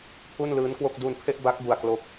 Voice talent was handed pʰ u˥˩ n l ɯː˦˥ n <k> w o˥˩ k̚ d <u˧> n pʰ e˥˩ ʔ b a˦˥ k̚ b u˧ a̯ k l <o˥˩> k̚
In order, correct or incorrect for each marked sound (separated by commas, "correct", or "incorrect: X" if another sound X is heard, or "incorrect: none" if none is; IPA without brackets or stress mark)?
correct, correct, incorrect: o˦˥